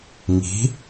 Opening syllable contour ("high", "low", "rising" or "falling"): rising